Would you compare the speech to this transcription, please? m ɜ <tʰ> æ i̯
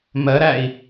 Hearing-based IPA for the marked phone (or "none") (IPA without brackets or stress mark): ɾ